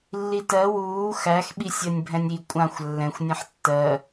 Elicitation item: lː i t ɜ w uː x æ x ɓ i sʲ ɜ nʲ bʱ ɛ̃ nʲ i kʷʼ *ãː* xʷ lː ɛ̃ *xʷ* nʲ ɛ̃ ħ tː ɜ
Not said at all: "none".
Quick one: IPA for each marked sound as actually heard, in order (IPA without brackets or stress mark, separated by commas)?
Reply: ã, xʷ